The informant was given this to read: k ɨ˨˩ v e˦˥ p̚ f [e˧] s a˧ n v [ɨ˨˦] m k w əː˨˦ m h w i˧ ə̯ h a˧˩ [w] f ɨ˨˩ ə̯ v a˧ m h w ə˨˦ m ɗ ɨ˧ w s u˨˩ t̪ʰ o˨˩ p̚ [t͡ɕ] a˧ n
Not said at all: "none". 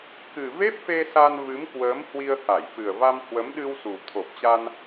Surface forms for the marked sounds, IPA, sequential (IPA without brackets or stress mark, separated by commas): e˧, ɨ˨˦, j, t͡ɕ